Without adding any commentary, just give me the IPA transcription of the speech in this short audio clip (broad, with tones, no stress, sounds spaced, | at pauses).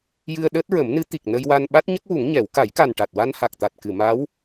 j ɨ˧ ə̯ ɗ əː˦˥ t̚ ɹ ə˨˩˦ m n ɨ˧˥ t̪ i˨˩ k̚ n ə˧ j w a˧ n ɓ a˦˥ t̚ ɲ ə˦˥ k̚ w u˨˩˦ ŋ ɲ ɛ˨˩˦ w k a˨˩˦ j k a˨˩ n ʈ a˨˩ t̚ w a˧ n h a˨˩ k̚ t̪ a˨˩ t̚ k ɨ˨˩˨ m a˧˥ w